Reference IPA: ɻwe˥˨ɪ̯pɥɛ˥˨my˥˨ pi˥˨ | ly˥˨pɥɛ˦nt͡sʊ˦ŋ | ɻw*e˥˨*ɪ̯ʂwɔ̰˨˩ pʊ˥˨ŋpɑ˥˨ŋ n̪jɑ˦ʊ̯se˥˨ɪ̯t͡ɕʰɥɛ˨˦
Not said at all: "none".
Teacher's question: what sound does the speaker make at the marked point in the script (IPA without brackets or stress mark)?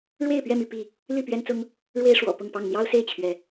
e˦